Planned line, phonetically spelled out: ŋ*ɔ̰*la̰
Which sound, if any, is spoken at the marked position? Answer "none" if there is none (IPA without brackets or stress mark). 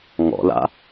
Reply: ɔ̰